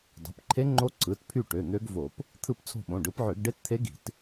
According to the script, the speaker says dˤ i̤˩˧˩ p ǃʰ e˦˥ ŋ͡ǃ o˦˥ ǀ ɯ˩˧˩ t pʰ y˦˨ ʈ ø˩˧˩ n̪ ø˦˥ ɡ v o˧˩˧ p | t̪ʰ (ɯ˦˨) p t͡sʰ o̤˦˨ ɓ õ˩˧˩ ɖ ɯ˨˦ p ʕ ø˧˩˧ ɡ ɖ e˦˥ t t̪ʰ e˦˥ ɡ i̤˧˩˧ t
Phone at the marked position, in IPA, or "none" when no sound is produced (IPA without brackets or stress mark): ɯ˦˨